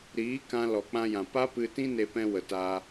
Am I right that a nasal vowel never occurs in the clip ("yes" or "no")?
no